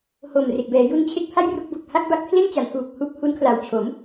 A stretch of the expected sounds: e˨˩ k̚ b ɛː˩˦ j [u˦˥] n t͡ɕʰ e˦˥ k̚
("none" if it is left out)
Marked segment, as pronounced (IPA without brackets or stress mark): u˦˥